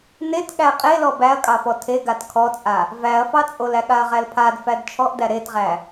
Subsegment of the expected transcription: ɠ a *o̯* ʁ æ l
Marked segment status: incorrect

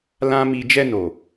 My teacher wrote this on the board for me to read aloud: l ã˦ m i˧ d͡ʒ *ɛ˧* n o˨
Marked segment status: correct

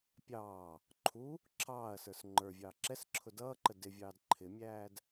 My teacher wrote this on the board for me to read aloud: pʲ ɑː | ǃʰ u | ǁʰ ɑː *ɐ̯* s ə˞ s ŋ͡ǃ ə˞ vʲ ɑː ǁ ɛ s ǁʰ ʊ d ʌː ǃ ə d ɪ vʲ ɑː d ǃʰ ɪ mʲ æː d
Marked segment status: correct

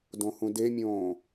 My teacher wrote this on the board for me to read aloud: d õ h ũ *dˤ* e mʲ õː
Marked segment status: incorrect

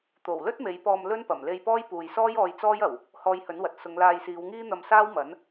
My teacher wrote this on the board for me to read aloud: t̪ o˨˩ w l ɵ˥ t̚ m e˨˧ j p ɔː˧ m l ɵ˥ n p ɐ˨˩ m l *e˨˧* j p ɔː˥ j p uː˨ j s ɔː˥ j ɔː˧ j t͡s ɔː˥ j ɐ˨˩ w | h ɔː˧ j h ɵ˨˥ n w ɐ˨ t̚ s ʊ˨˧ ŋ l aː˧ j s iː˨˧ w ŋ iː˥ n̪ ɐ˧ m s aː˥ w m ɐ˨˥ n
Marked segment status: incorrect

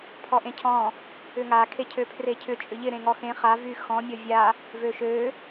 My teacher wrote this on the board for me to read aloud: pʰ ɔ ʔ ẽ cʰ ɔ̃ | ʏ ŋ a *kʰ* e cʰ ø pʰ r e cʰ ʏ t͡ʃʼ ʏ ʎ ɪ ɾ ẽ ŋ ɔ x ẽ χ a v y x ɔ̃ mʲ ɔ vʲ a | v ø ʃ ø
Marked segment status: correct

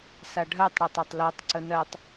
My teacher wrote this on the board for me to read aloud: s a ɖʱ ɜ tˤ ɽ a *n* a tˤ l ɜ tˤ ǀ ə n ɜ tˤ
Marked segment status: incorrect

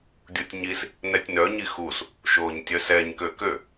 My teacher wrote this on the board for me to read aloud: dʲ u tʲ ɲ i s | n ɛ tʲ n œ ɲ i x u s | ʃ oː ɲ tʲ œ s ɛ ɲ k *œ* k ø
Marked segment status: incorrect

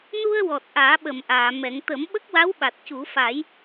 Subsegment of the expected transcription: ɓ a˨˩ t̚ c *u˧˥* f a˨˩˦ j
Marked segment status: incorrect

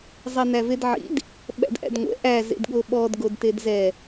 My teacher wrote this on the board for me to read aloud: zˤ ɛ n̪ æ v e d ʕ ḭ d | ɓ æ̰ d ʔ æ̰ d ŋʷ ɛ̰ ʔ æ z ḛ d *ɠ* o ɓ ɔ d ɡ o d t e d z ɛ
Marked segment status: correct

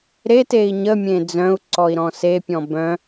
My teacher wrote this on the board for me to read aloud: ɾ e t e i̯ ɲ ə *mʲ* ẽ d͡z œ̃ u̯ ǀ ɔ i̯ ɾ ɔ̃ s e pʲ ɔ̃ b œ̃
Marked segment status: correct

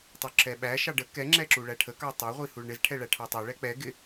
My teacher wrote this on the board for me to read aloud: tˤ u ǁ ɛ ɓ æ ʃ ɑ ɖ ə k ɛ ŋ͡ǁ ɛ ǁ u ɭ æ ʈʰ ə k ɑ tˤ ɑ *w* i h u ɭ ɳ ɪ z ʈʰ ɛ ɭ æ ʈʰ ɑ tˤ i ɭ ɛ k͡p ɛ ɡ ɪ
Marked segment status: incorrect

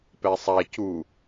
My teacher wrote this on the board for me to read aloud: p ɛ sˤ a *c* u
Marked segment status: correct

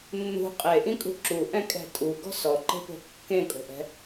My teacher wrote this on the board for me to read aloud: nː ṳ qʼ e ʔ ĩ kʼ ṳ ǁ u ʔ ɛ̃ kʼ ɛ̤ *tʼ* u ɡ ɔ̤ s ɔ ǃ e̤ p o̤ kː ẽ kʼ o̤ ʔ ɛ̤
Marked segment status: correct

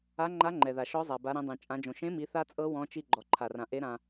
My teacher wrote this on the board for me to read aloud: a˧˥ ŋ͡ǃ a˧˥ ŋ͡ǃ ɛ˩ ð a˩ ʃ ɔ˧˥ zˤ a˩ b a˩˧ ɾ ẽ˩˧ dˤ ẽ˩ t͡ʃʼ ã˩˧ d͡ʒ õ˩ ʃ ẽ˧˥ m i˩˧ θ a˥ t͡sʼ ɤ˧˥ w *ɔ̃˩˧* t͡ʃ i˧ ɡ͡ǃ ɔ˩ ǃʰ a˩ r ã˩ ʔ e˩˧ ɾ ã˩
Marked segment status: correct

